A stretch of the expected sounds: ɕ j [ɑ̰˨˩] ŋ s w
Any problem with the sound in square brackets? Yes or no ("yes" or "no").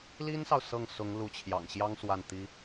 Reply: yes